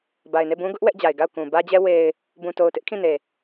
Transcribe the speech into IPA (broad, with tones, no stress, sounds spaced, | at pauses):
b a˨ ɪ̯ n e˦˨ b ũ˦ ɡ ʊ˦ ʔ w ɛ˦ ʔ d͡ʑ a˨ ɪ̯ ɡ a˦˨ ʊ̯ k ũ˨ b ä˦ d͡ʑ ɛ˦ w e˨ ɪ̯ | b ũ˨ t o˨ ʊ̯ t ɪ˦ ʔ kʰ ĩ˦˨ n e˨